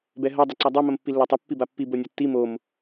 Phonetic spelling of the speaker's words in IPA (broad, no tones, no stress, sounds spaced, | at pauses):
b ɛ ɦ ɐ dˤ ɐ ǀ a dˤ o m ɐ m pː i lː ɛ tˤ ɐ pː i b a pː i b o nʲ a tː i m o m